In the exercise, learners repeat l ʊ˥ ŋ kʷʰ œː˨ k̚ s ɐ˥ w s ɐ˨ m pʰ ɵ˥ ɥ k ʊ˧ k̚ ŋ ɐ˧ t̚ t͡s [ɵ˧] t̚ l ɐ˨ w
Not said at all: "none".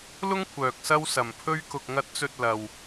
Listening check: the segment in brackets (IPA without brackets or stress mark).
ɵ˧